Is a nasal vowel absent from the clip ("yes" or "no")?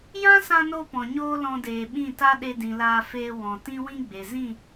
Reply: no